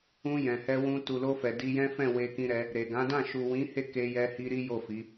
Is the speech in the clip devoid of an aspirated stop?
yes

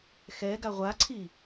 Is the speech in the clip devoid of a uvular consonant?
no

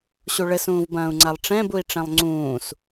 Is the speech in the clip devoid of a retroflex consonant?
no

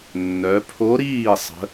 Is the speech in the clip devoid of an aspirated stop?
no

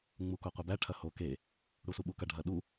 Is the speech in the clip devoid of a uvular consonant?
no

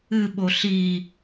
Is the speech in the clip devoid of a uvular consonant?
yes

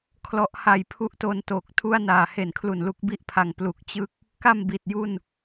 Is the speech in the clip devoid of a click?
yes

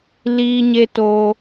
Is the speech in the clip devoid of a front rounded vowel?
yes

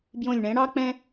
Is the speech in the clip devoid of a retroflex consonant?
no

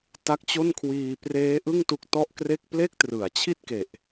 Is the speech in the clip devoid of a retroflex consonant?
yes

